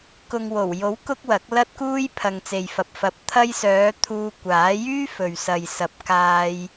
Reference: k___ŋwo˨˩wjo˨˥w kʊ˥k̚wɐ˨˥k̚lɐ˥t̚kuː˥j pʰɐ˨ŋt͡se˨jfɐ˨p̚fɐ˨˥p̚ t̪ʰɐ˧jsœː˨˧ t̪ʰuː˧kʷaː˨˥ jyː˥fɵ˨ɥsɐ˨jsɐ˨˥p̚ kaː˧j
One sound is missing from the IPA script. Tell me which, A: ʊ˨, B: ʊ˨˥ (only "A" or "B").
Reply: A